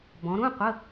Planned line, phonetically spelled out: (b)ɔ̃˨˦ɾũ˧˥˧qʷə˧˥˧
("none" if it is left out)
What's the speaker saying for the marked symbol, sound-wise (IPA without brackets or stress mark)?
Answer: b